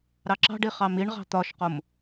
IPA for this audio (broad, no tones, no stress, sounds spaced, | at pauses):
ɾ ɑ ǁ ɑ̤ ɖ i χ ɑ m i ɳ ʁ ɑ̤ t̪ ɒ ʃ q o m